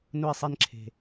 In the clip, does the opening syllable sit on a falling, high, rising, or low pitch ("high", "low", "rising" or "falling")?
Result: falling